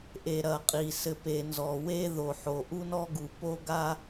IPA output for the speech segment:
ʔe˨ɾɐ˨qʼi˨ sɘ˨pe˨nzɔ˨ we˦ ðo˨ħo˨ʔu˦nɔ˦ ɡu˨po˦ ɡa˦

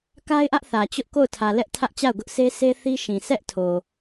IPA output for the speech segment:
ka˦ɪ̯ʔä˦ʔ θä˨t͡ɕʊ˦ʔ ko˦˨ʊ̯tʰä˨ lɛ˦ʔtʰä˦ʔt͡ɕa˦˨ʊ̯ɡʊ˦ʔ se˦ sʰe˦ θi˦ʃĩ˨ sʰɛ˦ʔtʰo˨

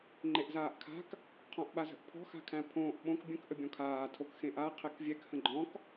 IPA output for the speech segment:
ŋ͡ǃeʔzaːʔkʰa̤k | qʰɔ̃ʔɓazə̤ʔpʰɔ̤ xa̤kʰæ̃pʰõːʔ ɓõk bʲə̃k ʔəbʲɔ̃kʰaː tʰokxẽʔa qʰɛkvʲɛk hə̃ɡ͡ǃɔ̃k

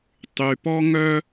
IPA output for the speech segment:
tˤy˧pɔ˥ŋœ˥

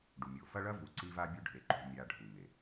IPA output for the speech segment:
ɖu˨mʲo˨ fɐ˦ɭɐ˦vu˨ ǀi˦va˦bʲu˦ɖʱe˨ ǃṳ˦mʲa˦ ɖʱu˨me˨

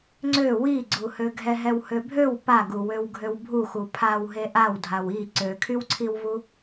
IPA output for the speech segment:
ŋ͡ǀø wiɡ͡ǀuhø ɡʱɛɦɛwhøbʱøw paɡu wøwɡʱøwbʱuxu pʰaw ɦeʔawdʱaw i ǀøkʰywǀʰiwvu

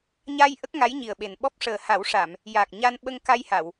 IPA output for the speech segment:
ɲa˧j ʔə˦˥k̚ŋa˧˥jɲi˨˩ə̯ ɓe˨˩nɓɔ˦˥p̚ ʂəː˨˩ha˨˩˦wʂa˨˩˨m | ja˨˩k̚ ɲa˧nɓə˧ŋka˧jha˨˩˨w

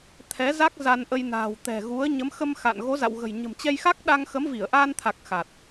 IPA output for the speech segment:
t̪ʰɛ˨˦za˦˥k̚ za˧nʔə˧jna̤ː˨˩w t̪ɛ̤˨˩ɣu˨˦ə̯ ɲə˨˦mxə˧m xa̰˧˨n ɣo˨˦za̰˧˨wɣə̤˨˩jɲə̤˨˩m t͡ɕɛ˧jxa˦˥k̚ɗa˧ŋ xə˨˦mvi˧˩ə̯ʔaː˧nt̪ʰa˨˩k̚ xa˨˩t̚

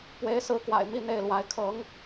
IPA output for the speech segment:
pwe˧˥ɪ̯sɹ̩˧˥kwa̰˨˩ɪ̯ mi˥˧n̪e˥˩ɪ̯lwa˧˥ɪ̯ kʰɤ˧˥ŋ

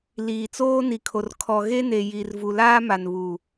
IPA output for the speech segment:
liː˨t͡soː˦ ni˨kʰo˨r kʰɔ˨ɣe˦ne˨ ji˨r vu˨laː˦ma˨nβu˨

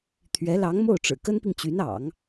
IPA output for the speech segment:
t̪ʰɥɛ˧˥lɑ˧˥ŋmo˥˩ʊ̯ʈ͡ʂɻ̩˨˩ kə˥npi˨ŋt͡ɕy˧˥nɑ̰˨˩˦ŋ

